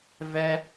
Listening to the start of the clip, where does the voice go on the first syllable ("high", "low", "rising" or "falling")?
high